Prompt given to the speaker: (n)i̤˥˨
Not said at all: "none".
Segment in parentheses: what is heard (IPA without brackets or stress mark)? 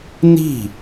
n